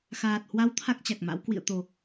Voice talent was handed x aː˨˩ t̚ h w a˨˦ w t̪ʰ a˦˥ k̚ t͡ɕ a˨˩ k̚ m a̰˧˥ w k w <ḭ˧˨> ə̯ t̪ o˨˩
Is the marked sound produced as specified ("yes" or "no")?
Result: yes